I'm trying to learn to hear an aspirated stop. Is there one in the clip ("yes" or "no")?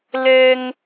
no